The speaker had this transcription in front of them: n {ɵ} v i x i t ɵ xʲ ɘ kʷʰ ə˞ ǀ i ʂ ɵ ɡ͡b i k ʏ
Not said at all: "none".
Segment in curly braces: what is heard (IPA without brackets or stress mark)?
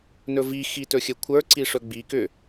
ɵ